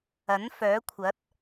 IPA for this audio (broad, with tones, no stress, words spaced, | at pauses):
ɐ˨˥n fœː˨˥kʷʰɐ˨˥t̚